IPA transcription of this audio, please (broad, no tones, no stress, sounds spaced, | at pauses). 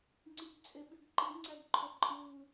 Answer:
ŋ͡ǀ i ɡ t͡sʼ e ɓ y ɡ ǃ i ŋ͡ǀ æ ɡ ǃʰ o ǃʼ ɯː